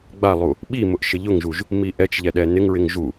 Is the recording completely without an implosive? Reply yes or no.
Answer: no